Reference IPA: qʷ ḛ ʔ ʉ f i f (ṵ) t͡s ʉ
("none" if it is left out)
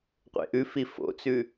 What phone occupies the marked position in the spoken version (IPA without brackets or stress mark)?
o̰